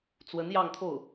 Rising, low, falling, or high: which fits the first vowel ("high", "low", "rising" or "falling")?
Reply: rising